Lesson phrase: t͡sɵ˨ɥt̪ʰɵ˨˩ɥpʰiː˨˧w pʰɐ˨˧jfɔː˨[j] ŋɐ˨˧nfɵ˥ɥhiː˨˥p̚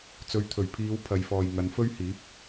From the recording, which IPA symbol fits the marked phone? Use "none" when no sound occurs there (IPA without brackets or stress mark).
j